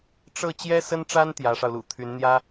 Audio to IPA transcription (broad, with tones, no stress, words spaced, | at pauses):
ʈ͡ʂɤ˥˩ t͡ɕjɛ˥sə˥nʈ͡ʂa˥n t̪jä˧˥ʂɑ˧ʊ̯lṵ˨˩ t̪ʰy˧˥nn̪jä˥